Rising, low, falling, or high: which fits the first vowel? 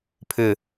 falling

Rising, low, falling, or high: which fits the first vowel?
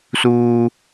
low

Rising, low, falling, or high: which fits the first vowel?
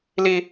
high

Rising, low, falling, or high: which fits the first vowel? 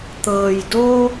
low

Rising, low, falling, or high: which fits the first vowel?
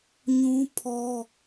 high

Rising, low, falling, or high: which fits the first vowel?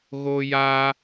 high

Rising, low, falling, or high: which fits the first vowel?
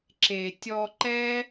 low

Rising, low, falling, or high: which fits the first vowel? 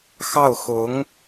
falling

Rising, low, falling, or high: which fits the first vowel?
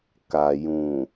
low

